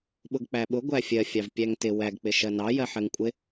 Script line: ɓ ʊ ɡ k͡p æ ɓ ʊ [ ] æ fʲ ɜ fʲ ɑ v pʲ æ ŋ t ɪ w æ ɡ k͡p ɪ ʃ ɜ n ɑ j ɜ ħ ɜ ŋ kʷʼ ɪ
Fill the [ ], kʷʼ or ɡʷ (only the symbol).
ɡʷ